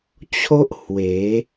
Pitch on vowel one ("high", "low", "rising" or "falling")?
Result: high